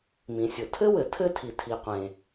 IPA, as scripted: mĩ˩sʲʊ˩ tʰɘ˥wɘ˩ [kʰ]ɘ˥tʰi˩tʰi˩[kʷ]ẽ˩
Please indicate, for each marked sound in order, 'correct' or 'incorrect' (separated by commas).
incorrect, incorrect